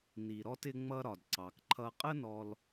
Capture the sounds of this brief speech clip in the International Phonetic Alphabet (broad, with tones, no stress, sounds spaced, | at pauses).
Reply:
n i˩ ɾ ɔ˧ t ɪ˧ ŋ͡m ʌ˧ ɾ ɒ˩ d ǀ ɑ˩ k ǃʰ ʌ˧ qʼ ə˥ n ɔ˧ l